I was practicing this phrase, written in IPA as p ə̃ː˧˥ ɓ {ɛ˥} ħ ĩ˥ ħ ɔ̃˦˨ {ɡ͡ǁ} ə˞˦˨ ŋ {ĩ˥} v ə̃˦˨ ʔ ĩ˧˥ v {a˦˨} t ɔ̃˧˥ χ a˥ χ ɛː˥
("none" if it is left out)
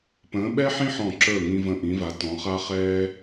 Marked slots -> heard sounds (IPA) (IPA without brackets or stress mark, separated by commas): ɛ˥, ǁ, ĩ˥, a˧˥